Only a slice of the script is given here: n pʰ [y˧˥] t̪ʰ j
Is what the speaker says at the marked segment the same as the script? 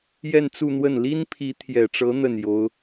no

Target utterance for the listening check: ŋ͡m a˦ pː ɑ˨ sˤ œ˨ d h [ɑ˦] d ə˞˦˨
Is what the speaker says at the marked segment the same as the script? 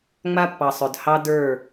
yes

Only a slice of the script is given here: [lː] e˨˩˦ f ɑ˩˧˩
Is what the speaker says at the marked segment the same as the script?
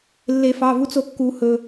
yes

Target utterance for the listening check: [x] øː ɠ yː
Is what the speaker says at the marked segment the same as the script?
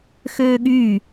yes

